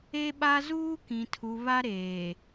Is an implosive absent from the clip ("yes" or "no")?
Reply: no